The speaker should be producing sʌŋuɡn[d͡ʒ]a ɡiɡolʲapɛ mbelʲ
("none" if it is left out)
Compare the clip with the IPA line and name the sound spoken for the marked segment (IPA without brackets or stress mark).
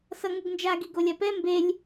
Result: d͡ʒ